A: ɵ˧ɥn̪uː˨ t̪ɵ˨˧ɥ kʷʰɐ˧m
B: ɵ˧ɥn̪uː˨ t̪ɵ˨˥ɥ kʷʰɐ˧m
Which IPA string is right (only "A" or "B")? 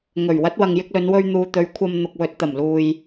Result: A